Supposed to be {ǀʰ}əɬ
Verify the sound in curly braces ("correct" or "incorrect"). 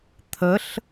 incorrect